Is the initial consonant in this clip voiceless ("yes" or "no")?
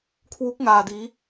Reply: yes